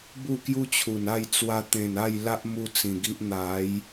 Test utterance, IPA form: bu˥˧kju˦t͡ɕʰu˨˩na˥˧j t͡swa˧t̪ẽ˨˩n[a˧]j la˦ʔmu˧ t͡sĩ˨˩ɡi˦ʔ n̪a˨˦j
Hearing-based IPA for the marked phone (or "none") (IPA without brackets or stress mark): a˥˧